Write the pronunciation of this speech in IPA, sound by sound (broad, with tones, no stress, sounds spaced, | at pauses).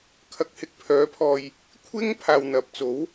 kʰ ɐ˨˥ k̚ h ɪ˨ k̚ pʰ œː˨˥ pʰ ɔː˨ j | kʷʰ ɪ˥ ŋ pʰ aː˨ w n̪ ɐ˨ p̚ t͡s o˨˥ w